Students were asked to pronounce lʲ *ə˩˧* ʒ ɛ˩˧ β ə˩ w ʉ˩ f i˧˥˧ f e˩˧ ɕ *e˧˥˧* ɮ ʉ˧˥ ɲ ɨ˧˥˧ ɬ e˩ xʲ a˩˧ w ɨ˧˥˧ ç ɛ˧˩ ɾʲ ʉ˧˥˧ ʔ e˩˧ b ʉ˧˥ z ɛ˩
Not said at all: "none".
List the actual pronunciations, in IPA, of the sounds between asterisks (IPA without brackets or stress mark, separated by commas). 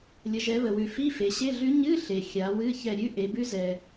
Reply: ə˩˧, e˧˥˧